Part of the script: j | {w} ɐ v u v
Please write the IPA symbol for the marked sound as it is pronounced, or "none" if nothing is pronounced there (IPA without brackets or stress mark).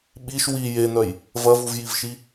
v